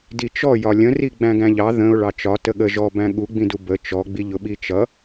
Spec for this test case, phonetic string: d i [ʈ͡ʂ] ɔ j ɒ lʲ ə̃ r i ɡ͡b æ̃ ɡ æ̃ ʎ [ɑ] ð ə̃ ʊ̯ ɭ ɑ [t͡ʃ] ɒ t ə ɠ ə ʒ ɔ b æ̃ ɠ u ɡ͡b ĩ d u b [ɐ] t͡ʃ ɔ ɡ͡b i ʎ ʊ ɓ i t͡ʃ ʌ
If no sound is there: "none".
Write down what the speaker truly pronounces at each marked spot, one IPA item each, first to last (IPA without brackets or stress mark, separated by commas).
t͡ʃ, ɑ, t͡ʃ, ə